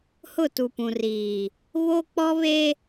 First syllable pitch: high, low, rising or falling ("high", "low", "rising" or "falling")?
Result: falling